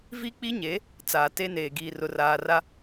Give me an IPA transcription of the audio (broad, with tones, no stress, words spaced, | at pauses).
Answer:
vi˦k͡pi˦ɲe˨˦ | t͡saː˨te˦neː˨ ɡiː˨rʊ˨raː˨ra˦